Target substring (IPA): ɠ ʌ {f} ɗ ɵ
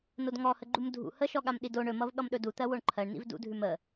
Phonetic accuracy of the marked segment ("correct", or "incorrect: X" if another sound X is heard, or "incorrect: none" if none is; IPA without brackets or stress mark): incorrect: m